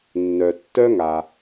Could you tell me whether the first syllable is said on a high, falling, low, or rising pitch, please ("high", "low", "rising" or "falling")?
low